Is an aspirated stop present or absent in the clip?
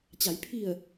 present